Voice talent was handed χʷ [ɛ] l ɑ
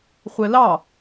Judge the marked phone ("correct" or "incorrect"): correct